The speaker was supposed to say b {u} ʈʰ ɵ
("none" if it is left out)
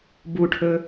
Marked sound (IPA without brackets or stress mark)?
u